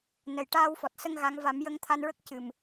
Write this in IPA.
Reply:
n ə˨˩ j ʈ aː˧ w f ɔ˨˩ t̚ s ə˧ ŋ ɣ a˧˥ ŋ v a˨˩˦ m j ə˧ ŋ t̪ʰ a˧ n ɹ ə˦˥ k̚ c ɨ˨˩ m

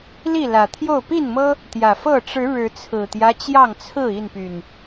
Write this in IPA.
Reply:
l i˥˨ l ä˨˩ t̪ʰ j o˥˨ ʊ̯ p i˥˨ n m ɤ˦ | t̪ j ä˨˩ f ɤ˥˨ ʈ͡ʂ ɻ̩˨˦ ɻ ɻ̩˨˦ t͡sʰ ɹ̩˨˩ t̪ j ä˦ t͡ɕ j ɑ˥˨ ŋ t͡sʰ ɹ̩˥˨ i˥˨ n p y˨˩ n

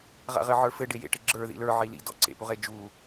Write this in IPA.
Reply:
ʁ a̰ ʁ ɘ ʕ ə˞ f ɘ ɖ e j ḛ ʈ ɘ ɡ͡ǁ ə˞ ð ḭ l ə˞ ʕ i l ḭ d ɔ̰ ǀ ḛ p u ʁ e d͡ʒ u

